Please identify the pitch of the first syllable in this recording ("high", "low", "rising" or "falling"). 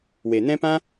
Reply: low